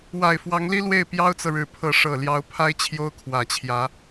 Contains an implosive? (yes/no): no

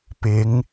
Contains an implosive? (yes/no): no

